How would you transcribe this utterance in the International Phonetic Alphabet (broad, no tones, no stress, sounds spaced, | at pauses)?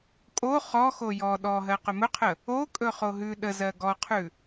kʼ o χ ɔ x o j ɔ ɗ ɔ ɦ ɜ q ɵ m ɵ qʰ ə | o kʼ ɵ χ o ɦ ʉ ɗ ə z ɜ ɡ ɔ qʰ ʉ